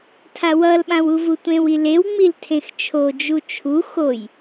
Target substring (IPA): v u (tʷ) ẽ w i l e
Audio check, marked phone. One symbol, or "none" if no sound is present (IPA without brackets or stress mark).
tʷ